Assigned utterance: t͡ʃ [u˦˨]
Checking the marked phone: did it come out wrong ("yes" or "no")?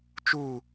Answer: no